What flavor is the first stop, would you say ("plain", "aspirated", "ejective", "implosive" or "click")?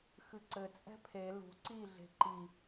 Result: click